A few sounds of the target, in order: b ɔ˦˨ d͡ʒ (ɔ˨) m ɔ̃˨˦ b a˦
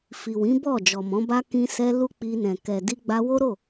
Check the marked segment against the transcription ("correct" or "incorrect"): correct